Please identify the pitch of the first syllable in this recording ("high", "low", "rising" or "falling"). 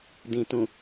low